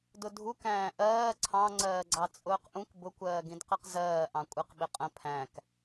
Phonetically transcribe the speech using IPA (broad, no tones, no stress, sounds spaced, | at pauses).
d ʊ dʱ u k æ̃ː ʔ ɜː ǀʰ ɑ̃ ŋ͡ǀ ɜː ɡ͡ǀ ɑ t͡sʼ ʊː q ʔ ũ k b ʊ kʷ ɜː ɡ ĩ d q ɛ q z ɜː ʔ ɑ̃ kʷʼ ɪ q ɓ ɪ qʼ ə̃ pʰ æ̃ k